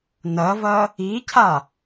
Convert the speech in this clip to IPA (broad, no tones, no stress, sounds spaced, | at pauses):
n ɐ v ɐ | i cʰ a